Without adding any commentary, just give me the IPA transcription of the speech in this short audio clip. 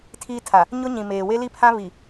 tʰ iː˦ tʰ a˨ | ɲ ʊ˦ ɲ ĩ˨ m eː˨ w e˦ l i˦ pʰ ã˦ β i˨

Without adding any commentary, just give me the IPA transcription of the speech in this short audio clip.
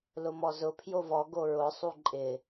l ʊ m ɔ z ʊ pʰ j o v ɔ ɡ o ɹ ʊ sˤ u ǃʼ ɪ

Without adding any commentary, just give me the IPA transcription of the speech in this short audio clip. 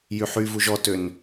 j y ħ y v u ʒ ɔ t ø n

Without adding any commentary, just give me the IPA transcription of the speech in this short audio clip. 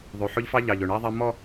ðˤ ʉ˨ ħ ɵ˦ ʎ f ɑ˦ ʎ ɑ˨ ʎ ɵ˨ ɳ ɛ˦ ðˤ ɛ˦ m ɔ˦

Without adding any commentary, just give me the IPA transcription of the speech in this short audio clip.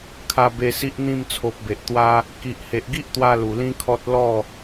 kʰ a˧ b e˧ s i˦ ʔ n̪ ĩ˥˧ m t͡sʰ o˨ p̚ b e˨ ʔ t̪ w a˧ | k i˨ ʔ h e˨ ʔ ɡ i˦ ʔ t̪ w a˧ l u˨˩ l ĩ˦ kʰ ɔ˦ t̚ l ɔ˥˧

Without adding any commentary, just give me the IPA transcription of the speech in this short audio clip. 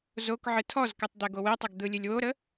z o k ʕ ɨ tʰ ɔ z k ɨ tˤ d̪ ɛ ɡ o w e tˤ ə ɡ d̪ ɯ lʲ ɨ lʲ w o ɾ ə

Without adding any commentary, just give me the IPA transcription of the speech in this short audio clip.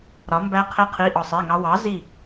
ɾ ɒ˨˥ m b æ˦˥ qʰ e˦˥ qʰ i˧˥˧ ʔ ɒ˦˨ sˤ e˧˥˧ ŋ ɑ˦˥ w ɑ˨˥ z i˦˨

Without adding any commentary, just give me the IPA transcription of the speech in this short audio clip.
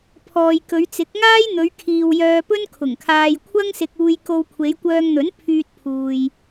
pʰ ɔː˨ j k ɵ˨˧ ɥ t͡s ɪ˨˥ k̚ ŋ aː˥ j n̪ ɵ˨˧ ɥ kʰ iː˨ w j œː˧ p ɵ˥ n kʰ ʊ˨˩ ŋ kʰ aː˧ j kʷʰ ɐ˥ ŋ s ɪ˧ k̚ uː˧ j k o˧ w kʷʰ e˨˧ j kʷ œː˧ ŋ n̪ ɵ˨˥ n pʰ yː˧ t̚ pʰ uː˨ j

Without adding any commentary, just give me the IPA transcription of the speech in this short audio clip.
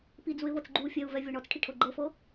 p i d͡z u ɪ̯ v ɤ t͡s ɡ͡ǃ u fʲ ɛ ʊ̯ v ɛ vʲ ɔ ɳ ɔ t͡s ʈʰ i ʈʰ ɤ ɡ͡ǃ ɤ f ɤ

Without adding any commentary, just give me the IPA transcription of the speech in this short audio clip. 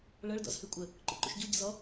ɭ ɤ ɭ d ɔ̰ z h ʉ kʷʼ ə | ǃ ṵ ǃ ṵ ʃ ɟ u ɟ ə̰ z ɔ

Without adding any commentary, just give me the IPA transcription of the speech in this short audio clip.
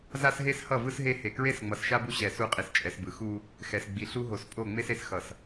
z a˦ s ɦ e˦ s h ʌ˦˨ v ɯ˦ s ɦ e˦ h e˨ k ɹ e˦ s ŋ͡m ʌ˨ s ʃ a˦ b u˦ ɕ ɛ˨ s u˦ qʼ i˨ s t͡ʃʼ ɛ˨ s b ɯ˨ x u˦ | x ɛ˨ s ɡ͡b i˨ ɬ u˦ ɦ o˨ s pʼ o˦˨ ŋ͡m e˦ s e˨ s x ʌ˨ s

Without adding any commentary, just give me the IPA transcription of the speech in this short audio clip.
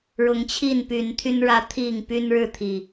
ɻ ʊ˨˦ ŋ t͡ɕʰ i˥˨ n p y˨˦ n t̪ʰ y˦ n ɻ ä˦ t̪ʰ i˥˨ ŋ p y˦ n ɻ ɻ̩˥˨ t̪ʰ i˨˩

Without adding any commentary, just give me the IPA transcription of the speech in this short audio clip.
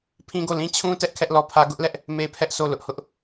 pʰ ĩ˦ ɡ o˦˨ l ĩ˦ t͡ɕʰ ũ˦ t ɛ˦ ʔ kʰ ɛ˦ ʔ l ɔ˦˨ pʰ ä˦ ɡ ʊ˦ ʔ l ɛ˦ ʔ | m e˦ pʰ ɛ˦ ʔ sʰ o˦˨ l ʊ˦ ʔ h ʊ˦ ʔ

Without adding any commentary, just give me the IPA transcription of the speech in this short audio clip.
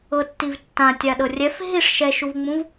ɤ tː i v tː ã tʲ a ɗ ɤ rʲ ɛ f ɦ i ʂ ʃ ɛ ʃ u v ŋ͡m ũ v

